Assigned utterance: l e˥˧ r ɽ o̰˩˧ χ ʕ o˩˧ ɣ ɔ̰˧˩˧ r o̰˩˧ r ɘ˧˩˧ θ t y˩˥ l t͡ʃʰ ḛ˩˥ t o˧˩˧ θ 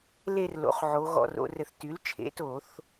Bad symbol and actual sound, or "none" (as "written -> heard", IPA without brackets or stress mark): ɽ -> l